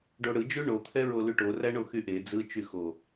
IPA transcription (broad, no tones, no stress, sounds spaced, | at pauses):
ɖ o ɽ ɯ d͡ʒ ʉ ɳ o t̪ʰ ɛ ɹ o l ʉ ʈ o r æ ɳ o x y ʔ e d͡z ɯ t͡ʃ y x o